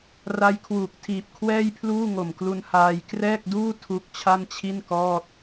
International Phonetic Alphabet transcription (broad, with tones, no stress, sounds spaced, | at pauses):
r a˦˥ j kʰ w uː˨˩ k̚ tʰ iː˨˩ p̚ kʰ w ɛː˥˩ j pʰ l uː˥˩ ŋ o˨˩ m k l u˧ n h aː˧ j k r ɛː˥˩ k̚ d uː˥˩ tʰ u˦˥ k̚ t͡ɕʰ a˥˩ n t͡ɕʰ i˥˩ n k ɔː˥˩ t̚